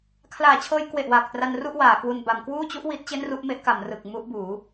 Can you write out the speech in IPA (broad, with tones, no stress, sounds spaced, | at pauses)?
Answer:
kʰ l aː˨˩ t͡ɕʰ ɤː˧ j k w e˨˩ ʔ w aː˨˩ k̚ t r a˧ n r u˥˩ ʔ w aː˩˦ k w u˧ n b a˩˦ m k w uː˥˩ t͡ɕ u˦˥ ʔ w i˦˥ t̚ t͡ɕ e˥˩ n r u˥˩ ʔ m e˦˥ ʔ k a˩˦ m r ɯ˨˩ k̚ m u˦˥ ʔ b uː˩˦